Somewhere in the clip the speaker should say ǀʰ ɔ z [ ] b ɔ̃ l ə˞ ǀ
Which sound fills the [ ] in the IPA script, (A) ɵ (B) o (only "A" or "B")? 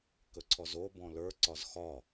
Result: B